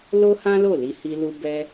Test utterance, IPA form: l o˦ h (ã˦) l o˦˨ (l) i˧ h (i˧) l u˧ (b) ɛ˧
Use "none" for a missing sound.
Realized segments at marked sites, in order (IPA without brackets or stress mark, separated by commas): ã˦, l, i˧, b